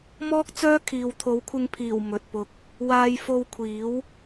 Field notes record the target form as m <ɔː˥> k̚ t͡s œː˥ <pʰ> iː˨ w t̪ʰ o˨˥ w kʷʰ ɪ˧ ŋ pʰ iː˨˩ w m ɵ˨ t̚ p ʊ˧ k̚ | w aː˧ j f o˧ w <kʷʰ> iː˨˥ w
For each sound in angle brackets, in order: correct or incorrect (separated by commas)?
correct, incorrect, correct